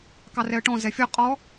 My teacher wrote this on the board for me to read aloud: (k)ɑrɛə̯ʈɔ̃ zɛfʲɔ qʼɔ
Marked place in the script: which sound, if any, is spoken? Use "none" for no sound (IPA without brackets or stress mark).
k